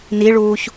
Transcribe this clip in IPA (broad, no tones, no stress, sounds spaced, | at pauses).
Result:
n i ɭ uː ç